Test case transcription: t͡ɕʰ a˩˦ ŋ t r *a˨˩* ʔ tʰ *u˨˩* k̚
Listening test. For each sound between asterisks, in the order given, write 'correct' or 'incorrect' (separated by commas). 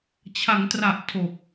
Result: correct, incorrect